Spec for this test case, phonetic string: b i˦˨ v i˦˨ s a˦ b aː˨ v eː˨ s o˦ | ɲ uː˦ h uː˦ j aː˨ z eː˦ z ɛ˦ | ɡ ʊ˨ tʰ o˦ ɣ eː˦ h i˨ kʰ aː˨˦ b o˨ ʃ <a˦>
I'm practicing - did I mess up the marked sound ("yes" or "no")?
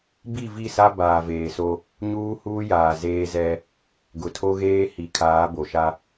no